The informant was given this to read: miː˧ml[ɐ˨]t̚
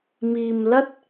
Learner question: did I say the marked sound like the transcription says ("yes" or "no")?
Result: no